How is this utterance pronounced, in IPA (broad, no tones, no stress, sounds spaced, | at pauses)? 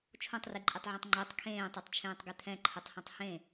t͡ʃʰ õ tˤ r i ǃʼ i tˤ ʕ õ tˤ ŋ͡ǃ e tˤ kʰ ẽː tˤ e tˤ t͡ʃʰ ẽː tˤ ɡ ɛ t̪ʰ ɛ̃ ǃʰ ɯ tˤ h ɛ̃ tˤ h ẽ